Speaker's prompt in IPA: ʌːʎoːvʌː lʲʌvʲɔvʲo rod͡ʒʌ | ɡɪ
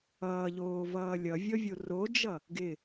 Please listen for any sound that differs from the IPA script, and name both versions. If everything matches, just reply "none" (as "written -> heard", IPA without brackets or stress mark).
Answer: none